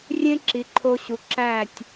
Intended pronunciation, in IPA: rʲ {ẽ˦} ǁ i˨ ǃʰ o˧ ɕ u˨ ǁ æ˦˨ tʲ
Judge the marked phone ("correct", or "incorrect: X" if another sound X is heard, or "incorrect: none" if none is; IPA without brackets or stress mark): correct